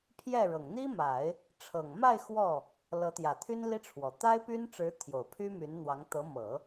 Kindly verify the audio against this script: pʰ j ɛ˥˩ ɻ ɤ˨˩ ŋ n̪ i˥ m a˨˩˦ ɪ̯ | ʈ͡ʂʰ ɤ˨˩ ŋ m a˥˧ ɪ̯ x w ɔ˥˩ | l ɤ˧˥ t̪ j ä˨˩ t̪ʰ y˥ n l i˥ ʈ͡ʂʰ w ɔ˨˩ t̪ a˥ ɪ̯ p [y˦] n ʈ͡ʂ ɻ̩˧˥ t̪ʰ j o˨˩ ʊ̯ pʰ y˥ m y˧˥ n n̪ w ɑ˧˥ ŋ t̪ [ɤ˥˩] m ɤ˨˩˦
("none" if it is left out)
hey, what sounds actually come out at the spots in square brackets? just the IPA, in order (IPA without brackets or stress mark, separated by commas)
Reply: y˥, ɤ˧˥